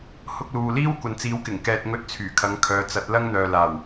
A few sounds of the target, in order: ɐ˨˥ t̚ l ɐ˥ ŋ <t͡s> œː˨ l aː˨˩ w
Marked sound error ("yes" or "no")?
yes